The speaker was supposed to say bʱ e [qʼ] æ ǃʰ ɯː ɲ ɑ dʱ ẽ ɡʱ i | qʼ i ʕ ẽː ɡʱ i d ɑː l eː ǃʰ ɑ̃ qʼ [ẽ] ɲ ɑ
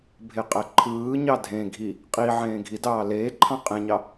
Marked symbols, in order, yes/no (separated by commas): yes, yes